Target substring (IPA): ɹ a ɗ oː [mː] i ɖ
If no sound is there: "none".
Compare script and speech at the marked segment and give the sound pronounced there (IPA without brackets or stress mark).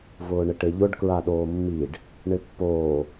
mː